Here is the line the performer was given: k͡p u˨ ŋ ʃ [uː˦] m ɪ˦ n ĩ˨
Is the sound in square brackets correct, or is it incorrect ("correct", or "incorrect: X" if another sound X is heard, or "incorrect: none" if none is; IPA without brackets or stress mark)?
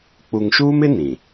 correct